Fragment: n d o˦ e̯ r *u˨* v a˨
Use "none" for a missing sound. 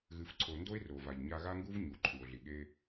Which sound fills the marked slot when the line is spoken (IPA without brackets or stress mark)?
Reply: o˨